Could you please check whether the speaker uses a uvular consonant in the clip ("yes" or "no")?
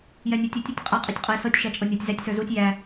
yes